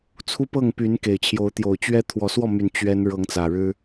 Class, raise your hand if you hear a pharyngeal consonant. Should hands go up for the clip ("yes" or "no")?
no